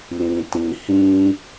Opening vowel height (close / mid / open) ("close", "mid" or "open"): close